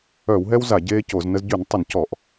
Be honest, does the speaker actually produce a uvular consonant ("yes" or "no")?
no